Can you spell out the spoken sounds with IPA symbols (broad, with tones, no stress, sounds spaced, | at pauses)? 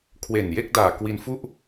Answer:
kʰ w e˨˩ n j e˥˩ k̚ d aː˨˩ k w i˧ n f u˥˩ ʔ